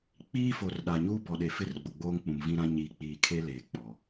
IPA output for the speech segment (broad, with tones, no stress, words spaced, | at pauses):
k͡piː˦fo˨r ɗa˨ɲuː˦ bɔ˨ɗe˨fɪ˦rɡ͡bʊ˨ ɡ͡boː˦ŋk͡pũ˨mvĩ˦ɾã˦ ɲiː˨k͡piː˨kʰe˦ leː˨k͡pɔ˨